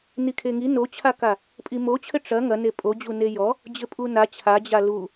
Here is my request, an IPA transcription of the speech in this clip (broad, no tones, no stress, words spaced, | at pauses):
nikʰeŋi not͡ɕʰaka | pʼimot͡ɕʰɘ ʈ͡ʂɐ ŋɐne pʼod͡ʑu nejɔ | d͡ʑɘpʼuna t͡ɕʰad͡ʑa lu